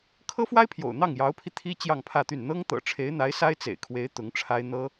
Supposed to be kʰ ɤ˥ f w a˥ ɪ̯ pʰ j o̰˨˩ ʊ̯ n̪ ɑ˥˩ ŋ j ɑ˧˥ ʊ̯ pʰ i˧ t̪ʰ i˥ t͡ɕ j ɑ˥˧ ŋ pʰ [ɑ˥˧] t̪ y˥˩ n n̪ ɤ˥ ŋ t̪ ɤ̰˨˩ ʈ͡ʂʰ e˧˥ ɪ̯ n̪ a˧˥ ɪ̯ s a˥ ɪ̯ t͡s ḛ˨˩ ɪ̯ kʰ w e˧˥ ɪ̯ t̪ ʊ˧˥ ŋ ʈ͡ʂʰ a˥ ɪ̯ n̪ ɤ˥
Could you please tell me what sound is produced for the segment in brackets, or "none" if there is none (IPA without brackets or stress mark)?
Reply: ä˥˧